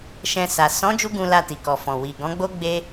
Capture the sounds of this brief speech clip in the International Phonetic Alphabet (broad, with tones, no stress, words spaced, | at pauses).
ʃɛ̃˧ sa˨ sɔ̃˨˦ d͡ʒu˦ɡũ˧la˧ ti˨kɔ˨fɔ̃˨ wi˨ɡɔ̃˨˦ɡ͡bo˦ɡ͡be˦